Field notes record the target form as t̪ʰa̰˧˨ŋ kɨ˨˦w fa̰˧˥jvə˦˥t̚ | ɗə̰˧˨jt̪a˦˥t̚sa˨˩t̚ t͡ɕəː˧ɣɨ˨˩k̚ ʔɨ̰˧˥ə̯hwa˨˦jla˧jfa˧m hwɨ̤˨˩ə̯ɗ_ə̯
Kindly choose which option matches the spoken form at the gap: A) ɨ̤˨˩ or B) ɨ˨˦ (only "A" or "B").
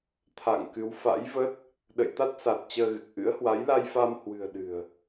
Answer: A